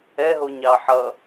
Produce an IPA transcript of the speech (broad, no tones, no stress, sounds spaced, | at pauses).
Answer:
ɛ ɦ o ɲ ɑ ħ ʌ